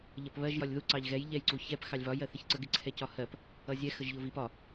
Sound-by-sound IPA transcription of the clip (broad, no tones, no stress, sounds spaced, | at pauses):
ʎ ʌ p β ɜ ʒ j ɒ lʲ ð u ǀ ɑ ʎ ɣ ɛ j ʎ ɛ j ǀ u ç ɛ p x ɑ lʲ v ɒ j ɜ θ ɪ ç ǀ ə ɡ ɪ ǀʰ ɛ c ɒ h ɜ p | ʌ zʲ ɛ x ə ʒ ʎ ʊ v i p ɒ